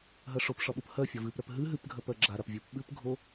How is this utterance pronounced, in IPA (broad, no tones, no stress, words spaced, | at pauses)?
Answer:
ɦɜʂopʂɒɓup hɜ fʲɒvɨpɾɜp ɦɨ ɦɨpɡʱɜ pɜɡ͡ǁaɾap vʲupɓɨpɡʱo